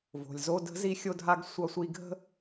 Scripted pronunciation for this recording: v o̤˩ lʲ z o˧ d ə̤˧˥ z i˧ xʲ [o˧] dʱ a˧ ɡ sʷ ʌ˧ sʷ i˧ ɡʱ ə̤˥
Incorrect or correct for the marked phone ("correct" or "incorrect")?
correct